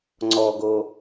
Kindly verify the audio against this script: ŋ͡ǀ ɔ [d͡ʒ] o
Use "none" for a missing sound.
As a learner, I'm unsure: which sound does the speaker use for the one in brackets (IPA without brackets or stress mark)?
ɡ